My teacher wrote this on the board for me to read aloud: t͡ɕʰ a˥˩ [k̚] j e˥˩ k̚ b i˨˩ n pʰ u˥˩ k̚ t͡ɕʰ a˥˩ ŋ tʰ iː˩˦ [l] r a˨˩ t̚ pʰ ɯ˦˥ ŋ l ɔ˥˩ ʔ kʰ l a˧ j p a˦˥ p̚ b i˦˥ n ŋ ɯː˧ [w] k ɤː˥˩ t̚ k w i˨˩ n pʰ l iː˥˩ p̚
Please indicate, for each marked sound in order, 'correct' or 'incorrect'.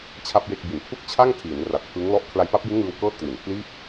incorrect: p̚, incorrect: n, correct

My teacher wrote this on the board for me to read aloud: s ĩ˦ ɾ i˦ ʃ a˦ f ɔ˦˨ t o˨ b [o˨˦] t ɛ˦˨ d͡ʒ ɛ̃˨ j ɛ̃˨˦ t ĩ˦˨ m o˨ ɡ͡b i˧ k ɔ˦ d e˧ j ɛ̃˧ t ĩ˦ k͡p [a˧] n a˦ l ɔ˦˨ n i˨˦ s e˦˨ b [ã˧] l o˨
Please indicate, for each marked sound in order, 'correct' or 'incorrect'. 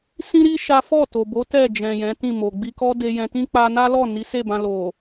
correct, correct, correct

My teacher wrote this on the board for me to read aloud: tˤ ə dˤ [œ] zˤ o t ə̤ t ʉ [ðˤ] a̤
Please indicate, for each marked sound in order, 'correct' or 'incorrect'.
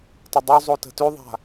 incorrect: ɵ, correct

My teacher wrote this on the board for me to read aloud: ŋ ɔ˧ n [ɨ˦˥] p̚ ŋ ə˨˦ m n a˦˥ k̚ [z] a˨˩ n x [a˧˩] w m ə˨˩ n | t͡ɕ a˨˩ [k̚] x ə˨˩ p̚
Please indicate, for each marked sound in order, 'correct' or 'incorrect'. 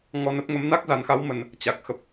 incorrect: ə˦˥, correct, incorrect: a˨˦, correct

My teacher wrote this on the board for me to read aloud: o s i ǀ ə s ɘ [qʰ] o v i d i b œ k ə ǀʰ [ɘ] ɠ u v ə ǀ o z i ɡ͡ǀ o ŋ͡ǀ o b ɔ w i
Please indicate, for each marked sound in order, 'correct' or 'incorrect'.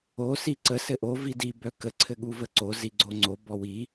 incorrect: ʔ, correct

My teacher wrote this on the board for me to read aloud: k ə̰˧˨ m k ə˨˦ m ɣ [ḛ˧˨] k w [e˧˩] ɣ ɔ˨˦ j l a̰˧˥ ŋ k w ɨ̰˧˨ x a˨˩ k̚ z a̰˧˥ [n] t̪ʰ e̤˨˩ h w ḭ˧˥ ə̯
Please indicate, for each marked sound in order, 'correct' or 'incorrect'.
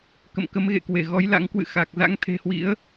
correct, correct, incorrect: ŋ

